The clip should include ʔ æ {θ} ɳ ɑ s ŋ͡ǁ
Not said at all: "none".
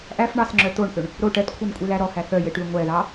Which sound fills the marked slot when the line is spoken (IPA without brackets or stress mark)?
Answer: f